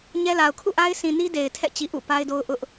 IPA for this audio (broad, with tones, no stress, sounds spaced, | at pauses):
ɲ ɛ˦ l a˨ ʊ̯ kʰ ṵ˦˨ ʔ a˦ ɪ̯ s ĩ˨ n i˦ d e˨ ɪ̯ tʰ ɛ̰˦˨ t͡ɕ i˨ ʔ ṵ˦˨ p a˦ ɪ̯ d o˦ ʊ̯ ʔ ʊ˦ ʔ